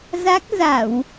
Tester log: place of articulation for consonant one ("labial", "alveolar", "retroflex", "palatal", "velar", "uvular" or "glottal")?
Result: alveolar